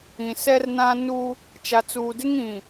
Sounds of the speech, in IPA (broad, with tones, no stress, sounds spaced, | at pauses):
ĩ˨ s ɛ˦ r n ã˦ n u˦ | t͡ʃ a˨ t͡s uː˨ d ɪ˦ ŋ ĩ˨